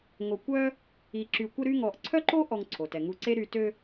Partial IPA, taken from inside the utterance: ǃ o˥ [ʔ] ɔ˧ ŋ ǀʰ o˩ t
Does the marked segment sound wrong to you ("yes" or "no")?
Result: no